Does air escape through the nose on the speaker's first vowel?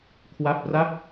no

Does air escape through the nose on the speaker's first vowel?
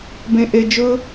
yes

